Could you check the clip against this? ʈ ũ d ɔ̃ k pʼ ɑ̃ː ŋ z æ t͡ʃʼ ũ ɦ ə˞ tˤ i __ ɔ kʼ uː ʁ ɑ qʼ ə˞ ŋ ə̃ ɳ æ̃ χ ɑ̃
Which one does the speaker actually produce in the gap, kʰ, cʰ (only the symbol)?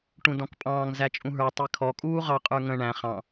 kʰ